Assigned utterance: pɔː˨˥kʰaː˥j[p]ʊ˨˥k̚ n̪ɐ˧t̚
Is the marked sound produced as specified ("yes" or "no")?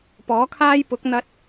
yes